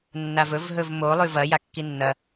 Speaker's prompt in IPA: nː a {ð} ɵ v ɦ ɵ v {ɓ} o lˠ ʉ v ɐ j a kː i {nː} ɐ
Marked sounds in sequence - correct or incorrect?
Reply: incorrect, incorrect, correct

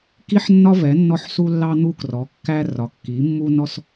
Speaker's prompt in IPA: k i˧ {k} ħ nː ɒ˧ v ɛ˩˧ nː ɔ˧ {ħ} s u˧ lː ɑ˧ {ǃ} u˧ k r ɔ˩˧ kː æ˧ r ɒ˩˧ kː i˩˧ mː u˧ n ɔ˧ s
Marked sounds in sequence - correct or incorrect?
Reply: incorrect, correct, incorrect

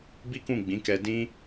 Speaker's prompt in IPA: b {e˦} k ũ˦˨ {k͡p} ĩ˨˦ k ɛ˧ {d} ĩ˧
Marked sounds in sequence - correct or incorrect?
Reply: incorrect, incorrect, correct

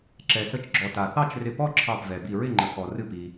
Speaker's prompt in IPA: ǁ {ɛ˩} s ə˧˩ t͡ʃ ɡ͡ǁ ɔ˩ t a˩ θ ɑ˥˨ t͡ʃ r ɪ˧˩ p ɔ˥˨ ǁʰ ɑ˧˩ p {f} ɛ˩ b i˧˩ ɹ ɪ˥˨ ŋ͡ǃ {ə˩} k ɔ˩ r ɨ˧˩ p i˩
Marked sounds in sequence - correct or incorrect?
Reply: correct, incorrect, correct

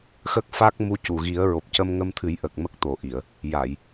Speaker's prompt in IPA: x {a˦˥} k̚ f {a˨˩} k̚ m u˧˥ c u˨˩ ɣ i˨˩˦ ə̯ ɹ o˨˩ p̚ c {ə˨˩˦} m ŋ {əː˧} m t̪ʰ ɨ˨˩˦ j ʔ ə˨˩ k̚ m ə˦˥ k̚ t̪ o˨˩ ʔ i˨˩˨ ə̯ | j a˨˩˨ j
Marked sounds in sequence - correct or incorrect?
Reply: incorrect, incorrect, incorrect, incorrect

